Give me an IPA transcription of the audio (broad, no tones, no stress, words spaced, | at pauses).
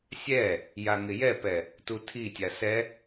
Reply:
sʲɛ | jaŋɪjɛpɛ | tutʰitʲa sɛ